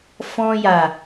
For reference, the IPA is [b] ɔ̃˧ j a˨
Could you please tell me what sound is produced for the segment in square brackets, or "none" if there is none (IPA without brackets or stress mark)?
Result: f